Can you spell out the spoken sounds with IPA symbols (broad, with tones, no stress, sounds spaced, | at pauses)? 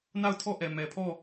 n a˦˨ ʊ̯ tʰ ɔ˦˨ ʔ ɛ˨ m ɛ˨ pʰ ɔ˦˨